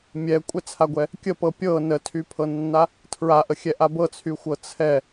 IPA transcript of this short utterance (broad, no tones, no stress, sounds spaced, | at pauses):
mʲ ɛ kʷʼ ɛ t͡sʰ a ɡʷ ɛ | kʲ ə p ɤ pʲ ɤ n ə tʰ y pʰ ɤ nː a | tʰ ɹ a ʔ ə xʲ ɛ ʔ a b ɤ t͡sʰ y xʷ ɤ t͡sʰ ɛ